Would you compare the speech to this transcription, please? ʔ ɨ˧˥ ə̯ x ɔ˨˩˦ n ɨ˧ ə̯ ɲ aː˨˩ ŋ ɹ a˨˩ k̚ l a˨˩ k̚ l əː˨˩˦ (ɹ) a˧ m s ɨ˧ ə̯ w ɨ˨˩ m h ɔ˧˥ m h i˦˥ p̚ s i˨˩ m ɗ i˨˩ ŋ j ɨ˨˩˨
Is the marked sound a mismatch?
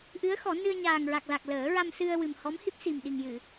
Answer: no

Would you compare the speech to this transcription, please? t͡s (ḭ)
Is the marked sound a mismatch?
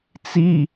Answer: yes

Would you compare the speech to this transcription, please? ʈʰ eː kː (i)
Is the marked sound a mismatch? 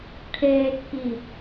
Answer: no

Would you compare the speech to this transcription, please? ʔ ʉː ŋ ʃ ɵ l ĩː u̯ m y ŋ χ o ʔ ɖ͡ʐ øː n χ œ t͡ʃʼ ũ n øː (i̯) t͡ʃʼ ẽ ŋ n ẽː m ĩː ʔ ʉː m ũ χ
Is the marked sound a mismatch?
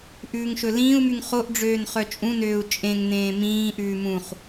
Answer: yes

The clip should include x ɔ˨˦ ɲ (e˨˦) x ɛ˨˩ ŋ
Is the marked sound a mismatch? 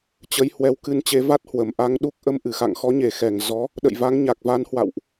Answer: yes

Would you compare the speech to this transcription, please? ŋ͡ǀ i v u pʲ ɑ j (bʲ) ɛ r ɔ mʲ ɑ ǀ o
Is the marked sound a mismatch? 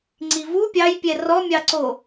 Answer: yes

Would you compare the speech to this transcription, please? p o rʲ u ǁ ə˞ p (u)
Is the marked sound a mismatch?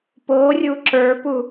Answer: no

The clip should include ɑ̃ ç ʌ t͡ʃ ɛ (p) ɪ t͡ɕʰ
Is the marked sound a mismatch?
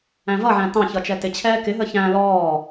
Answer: yes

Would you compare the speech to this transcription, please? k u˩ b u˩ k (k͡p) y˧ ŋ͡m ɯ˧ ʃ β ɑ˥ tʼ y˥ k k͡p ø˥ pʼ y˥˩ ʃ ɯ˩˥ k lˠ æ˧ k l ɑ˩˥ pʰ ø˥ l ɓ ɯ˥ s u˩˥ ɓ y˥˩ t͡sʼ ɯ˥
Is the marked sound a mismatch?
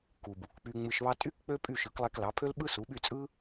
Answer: no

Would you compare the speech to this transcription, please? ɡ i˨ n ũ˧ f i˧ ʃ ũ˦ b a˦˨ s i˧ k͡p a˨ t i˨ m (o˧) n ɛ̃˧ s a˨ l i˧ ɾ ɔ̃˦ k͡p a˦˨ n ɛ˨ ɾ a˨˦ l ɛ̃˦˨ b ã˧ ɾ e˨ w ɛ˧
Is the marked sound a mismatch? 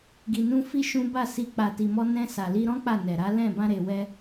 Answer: yes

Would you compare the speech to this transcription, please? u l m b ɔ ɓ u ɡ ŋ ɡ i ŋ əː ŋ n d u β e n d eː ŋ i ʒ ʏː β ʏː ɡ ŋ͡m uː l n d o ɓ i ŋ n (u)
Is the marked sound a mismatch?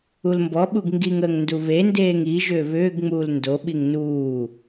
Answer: yes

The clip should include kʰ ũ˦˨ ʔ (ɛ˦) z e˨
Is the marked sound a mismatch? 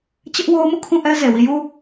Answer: no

